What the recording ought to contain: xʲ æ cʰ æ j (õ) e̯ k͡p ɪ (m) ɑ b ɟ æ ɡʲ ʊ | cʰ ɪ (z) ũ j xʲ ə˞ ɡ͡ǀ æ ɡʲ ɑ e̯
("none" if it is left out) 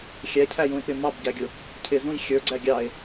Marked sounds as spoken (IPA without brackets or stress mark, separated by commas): ũ, m, z